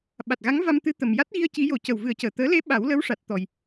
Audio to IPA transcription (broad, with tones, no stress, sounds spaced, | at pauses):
ɓ a˨˩ t̚ ɣ a˧˥ ŋ v a˧ m t̪ ɨ˧ t̪ ə˨˩ m j a˦˥ t̚ ɣ i˧ ə̯ c i˧˥ j o˨˩ c ə˨˩ w v ɨ˨˩ ə̯ c əː˨˩ t̪ əː˧˥ l e˧˥ ɓ a˨˩˦ w l ə˧˥ w ʂ a˨˩ t̚ t̪ ɔ˨˩ j